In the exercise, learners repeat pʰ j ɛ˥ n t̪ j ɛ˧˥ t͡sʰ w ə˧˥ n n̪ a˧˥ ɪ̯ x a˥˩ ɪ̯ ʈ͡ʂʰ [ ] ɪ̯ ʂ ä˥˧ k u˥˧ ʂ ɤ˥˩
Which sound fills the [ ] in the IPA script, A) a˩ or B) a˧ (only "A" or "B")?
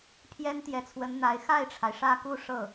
A